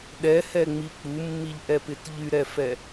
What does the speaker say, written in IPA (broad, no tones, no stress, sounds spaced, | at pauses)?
ɗ ɛ h ɛ ŋ͡m i k͡p u mː i ʎ ʔ ɛ p ɪ t ʎ y ɾ ɛ f ɛ